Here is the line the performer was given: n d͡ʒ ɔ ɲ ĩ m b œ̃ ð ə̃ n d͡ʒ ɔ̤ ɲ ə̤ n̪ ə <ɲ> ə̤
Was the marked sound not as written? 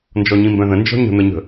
no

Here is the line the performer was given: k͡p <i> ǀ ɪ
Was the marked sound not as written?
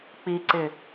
no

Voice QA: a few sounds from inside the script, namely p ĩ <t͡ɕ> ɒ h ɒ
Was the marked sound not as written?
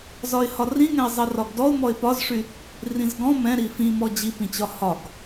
no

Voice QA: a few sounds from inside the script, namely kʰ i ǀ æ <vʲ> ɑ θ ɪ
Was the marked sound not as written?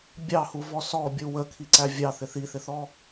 no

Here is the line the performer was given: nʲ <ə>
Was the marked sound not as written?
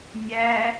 yes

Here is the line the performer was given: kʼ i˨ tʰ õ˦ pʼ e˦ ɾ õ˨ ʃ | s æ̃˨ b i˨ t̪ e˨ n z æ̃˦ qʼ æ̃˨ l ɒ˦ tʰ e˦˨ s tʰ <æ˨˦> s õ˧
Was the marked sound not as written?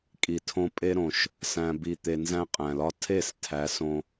no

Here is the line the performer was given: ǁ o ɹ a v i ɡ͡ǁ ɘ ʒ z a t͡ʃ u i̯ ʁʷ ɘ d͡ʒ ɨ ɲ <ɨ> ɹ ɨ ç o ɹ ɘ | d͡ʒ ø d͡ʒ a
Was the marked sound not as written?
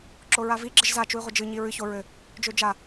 yes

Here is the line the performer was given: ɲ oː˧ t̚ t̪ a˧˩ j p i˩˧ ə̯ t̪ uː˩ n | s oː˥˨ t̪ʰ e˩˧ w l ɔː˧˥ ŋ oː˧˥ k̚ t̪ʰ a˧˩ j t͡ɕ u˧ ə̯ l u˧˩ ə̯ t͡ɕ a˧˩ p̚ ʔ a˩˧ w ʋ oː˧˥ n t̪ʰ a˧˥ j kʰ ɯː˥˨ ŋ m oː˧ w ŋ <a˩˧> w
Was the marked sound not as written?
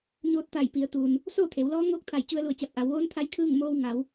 no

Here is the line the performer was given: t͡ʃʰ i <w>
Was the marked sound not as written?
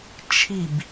yes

